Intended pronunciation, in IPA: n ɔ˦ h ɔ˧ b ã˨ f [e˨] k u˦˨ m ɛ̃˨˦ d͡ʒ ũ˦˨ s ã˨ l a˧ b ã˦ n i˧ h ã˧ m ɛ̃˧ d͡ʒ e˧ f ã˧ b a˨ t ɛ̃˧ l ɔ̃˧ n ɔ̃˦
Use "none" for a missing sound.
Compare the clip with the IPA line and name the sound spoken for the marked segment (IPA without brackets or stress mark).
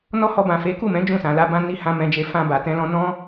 e˨˦